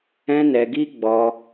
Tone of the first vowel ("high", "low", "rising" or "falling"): high